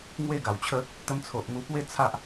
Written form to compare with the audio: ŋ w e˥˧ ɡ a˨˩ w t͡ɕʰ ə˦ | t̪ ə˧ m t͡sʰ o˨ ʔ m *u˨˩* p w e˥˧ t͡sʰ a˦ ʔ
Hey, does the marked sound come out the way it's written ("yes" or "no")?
no